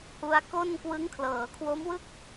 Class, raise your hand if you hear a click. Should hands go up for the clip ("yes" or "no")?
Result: no